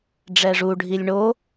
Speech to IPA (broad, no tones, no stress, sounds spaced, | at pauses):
ɖ͡ʐ ɛ ʐ u ɖʱ i lʲ ɳ o